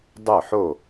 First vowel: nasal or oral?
oral